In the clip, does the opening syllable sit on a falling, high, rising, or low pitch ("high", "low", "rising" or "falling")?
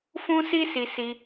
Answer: high